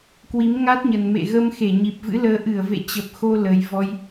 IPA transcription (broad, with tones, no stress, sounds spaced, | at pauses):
k w i˨˦ m ŋ a˦˥ t̚ ɲ ə˨˩ n m ḛ˧˨ ɣ ə˧ m x e˧˩ ɲ i˨˩ p̚ v ɨ̰˧˥ l əː˨˦ ʔ ɨ˧˩ ə̯ v ḛ˧˨ t͡ɕ ə˨˩ p̚ x o˧ l ə˨˩ j v ɔ˧ j